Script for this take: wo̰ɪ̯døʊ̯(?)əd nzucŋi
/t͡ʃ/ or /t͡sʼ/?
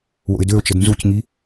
t͡ʃ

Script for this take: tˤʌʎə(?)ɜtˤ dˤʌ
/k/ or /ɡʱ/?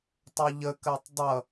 k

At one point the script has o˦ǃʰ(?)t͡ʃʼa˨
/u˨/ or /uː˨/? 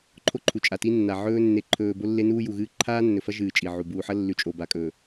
u˨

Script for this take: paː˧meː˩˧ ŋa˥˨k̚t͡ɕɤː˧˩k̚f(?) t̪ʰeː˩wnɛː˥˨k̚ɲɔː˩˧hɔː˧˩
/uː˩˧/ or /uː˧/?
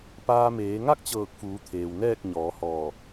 uː˩˧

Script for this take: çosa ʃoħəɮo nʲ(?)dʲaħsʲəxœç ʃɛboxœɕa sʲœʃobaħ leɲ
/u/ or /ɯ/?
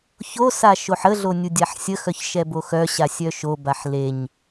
u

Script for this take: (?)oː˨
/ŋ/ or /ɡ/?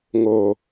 ŋ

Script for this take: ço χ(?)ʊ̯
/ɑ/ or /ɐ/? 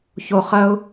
ɐ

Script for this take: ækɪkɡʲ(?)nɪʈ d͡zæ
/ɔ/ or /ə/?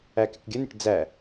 ə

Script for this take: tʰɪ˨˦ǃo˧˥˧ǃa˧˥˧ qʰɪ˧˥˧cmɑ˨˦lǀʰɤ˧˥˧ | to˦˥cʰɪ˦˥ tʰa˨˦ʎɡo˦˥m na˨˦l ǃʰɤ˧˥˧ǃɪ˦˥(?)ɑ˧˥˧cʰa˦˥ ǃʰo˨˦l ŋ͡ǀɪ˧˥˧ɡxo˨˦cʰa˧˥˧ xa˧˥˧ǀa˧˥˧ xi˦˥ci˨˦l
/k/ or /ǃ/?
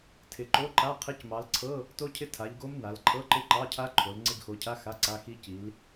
ǃ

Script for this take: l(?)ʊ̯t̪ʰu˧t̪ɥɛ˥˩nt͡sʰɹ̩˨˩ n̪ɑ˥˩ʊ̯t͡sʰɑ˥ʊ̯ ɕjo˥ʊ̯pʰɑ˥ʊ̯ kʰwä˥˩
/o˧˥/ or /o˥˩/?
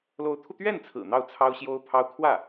o˧˥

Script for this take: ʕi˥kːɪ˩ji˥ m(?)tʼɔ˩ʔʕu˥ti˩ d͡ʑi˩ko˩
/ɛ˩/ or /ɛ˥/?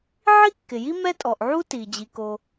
ɛ˥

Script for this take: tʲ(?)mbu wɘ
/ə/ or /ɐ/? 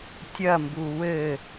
ɐ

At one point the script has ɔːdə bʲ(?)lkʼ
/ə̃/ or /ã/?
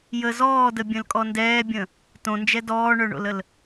ə̃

